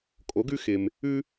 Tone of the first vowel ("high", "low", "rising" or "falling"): rising